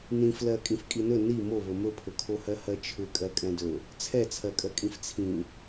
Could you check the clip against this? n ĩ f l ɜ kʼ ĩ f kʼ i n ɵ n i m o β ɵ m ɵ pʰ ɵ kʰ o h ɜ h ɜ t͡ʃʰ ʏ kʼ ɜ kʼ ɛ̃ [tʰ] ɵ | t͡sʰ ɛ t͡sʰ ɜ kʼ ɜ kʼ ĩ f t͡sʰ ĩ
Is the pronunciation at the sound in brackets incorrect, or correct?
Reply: incorrect: d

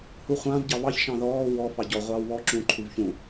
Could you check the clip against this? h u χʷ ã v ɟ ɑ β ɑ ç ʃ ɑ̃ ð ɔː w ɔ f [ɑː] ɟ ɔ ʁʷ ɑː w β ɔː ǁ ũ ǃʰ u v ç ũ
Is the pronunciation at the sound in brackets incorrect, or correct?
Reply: incorrect: ɑ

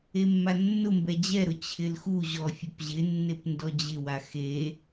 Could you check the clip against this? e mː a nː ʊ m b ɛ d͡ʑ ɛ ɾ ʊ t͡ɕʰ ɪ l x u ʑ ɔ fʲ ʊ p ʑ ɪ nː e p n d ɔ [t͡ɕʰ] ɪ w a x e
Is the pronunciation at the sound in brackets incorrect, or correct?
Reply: incorrect: d͡ʑ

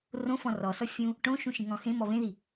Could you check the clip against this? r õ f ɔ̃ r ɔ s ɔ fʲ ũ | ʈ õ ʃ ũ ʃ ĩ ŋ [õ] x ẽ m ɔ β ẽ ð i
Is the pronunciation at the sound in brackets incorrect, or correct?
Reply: incorrect: ɔ̃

